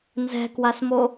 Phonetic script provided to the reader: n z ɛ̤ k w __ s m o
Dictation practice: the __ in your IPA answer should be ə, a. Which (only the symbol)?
a